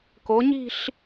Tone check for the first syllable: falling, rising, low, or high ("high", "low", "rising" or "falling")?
rising